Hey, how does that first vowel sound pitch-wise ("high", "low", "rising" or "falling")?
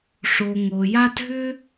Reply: low